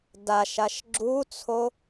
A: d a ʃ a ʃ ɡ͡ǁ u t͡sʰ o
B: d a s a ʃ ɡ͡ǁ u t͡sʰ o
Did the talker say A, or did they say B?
A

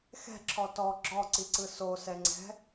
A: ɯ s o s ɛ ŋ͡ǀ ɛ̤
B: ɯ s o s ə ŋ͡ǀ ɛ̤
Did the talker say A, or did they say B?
A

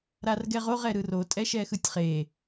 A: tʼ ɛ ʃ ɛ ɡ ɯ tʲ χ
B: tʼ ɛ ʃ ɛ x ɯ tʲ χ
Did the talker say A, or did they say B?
B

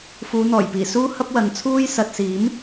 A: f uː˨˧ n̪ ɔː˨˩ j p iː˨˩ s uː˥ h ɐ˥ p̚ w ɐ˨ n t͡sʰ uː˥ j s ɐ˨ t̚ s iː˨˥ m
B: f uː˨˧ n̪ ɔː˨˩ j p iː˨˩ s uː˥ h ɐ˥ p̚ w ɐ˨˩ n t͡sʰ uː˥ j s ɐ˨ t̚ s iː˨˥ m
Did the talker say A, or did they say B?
A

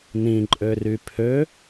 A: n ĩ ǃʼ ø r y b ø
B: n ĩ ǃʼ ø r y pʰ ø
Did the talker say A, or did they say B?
B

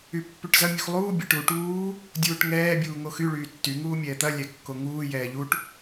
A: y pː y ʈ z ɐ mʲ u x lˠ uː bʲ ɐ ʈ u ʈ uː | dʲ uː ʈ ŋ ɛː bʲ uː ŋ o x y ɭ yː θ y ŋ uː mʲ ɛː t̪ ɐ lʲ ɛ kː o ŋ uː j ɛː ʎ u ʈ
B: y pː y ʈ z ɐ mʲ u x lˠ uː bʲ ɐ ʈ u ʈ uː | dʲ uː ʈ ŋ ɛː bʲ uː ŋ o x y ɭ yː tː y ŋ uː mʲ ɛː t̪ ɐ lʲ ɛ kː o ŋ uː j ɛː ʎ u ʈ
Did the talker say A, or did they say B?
B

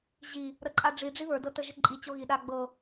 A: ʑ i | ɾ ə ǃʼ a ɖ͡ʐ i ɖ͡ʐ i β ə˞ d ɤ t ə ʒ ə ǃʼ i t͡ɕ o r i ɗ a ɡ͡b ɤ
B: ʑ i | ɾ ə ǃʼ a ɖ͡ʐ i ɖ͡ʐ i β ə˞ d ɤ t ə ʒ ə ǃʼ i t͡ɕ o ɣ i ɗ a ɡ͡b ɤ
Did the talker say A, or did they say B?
B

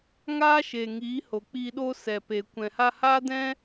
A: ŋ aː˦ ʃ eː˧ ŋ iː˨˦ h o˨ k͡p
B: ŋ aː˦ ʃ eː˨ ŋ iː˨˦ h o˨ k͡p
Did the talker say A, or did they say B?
B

